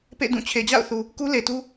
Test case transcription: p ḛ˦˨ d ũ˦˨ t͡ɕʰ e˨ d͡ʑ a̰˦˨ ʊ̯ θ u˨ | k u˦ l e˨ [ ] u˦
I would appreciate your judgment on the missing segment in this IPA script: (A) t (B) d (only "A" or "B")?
A